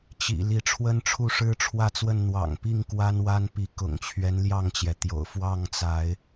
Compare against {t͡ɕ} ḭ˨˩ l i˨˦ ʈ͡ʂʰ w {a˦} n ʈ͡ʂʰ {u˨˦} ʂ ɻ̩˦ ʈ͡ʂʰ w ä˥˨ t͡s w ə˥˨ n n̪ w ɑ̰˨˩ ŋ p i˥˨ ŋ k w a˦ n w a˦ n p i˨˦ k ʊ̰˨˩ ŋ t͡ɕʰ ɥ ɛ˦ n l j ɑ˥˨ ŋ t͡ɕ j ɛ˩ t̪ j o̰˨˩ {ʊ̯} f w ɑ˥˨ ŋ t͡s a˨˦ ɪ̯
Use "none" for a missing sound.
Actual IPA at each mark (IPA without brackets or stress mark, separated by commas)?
t͡ɕ, ə˦, u˥˨, ʊ̯